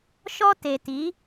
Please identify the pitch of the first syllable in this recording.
high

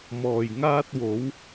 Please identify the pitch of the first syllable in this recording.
low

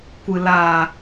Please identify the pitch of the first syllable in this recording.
low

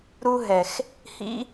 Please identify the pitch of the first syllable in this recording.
high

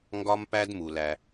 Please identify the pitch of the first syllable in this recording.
high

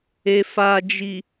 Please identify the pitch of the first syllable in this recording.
low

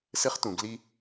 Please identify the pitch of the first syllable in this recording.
high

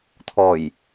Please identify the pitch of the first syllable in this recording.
low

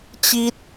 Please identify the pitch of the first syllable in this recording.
high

